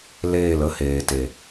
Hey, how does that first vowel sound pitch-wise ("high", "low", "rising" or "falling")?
falling